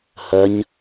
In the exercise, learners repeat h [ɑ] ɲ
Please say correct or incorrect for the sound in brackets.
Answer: incorrect